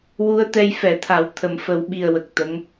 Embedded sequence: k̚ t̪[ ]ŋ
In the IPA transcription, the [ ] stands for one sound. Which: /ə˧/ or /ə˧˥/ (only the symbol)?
ə˧˥